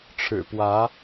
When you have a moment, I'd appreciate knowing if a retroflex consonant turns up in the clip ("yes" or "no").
yes